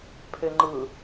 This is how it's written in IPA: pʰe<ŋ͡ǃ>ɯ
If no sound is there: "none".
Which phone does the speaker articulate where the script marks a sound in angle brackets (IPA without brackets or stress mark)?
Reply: ŋ͡ǃ